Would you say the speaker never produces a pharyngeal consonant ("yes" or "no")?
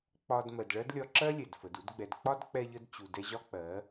yes